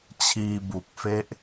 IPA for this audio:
t͡ɕʰ iː˧ b u˨˩ k̚ f e˥˩ ʔ

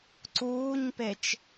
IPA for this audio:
ǀ uː ɲ p e t͡ʃ

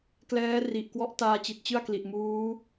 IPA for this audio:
k l ɛː˦˥ r i˨˩ ʔ k w ɔ˦˥ ʔ t aː˧ t͡ɕ i˨˩ t̚ t͡ɕ ɯ˥˩ a̯ k l i˨˩ ʔ m uː˦˥

